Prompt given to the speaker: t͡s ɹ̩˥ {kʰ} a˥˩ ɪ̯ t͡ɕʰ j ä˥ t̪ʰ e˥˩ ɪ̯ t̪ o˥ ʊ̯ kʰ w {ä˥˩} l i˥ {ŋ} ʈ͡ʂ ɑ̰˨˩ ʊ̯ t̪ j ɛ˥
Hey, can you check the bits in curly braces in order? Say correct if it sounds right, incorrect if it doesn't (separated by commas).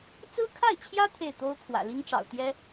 correct, incorrect, correct